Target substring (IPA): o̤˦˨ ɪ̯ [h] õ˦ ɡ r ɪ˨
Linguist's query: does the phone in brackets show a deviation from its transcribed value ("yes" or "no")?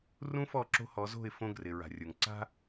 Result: yes